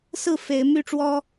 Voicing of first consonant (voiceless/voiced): voiceless